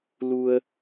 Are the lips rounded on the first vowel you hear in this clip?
yes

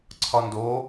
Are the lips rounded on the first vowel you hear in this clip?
yes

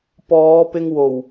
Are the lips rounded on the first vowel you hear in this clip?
yes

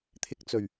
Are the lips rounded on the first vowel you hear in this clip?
no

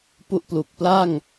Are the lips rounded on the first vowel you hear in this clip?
yes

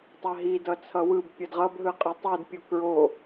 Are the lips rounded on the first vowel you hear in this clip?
no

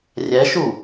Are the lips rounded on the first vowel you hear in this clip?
no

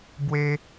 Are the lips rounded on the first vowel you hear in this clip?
no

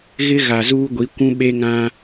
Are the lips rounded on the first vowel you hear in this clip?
no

